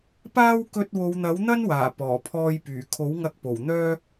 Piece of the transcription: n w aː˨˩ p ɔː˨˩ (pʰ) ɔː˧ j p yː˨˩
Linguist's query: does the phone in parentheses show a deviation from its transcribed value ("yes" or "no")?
no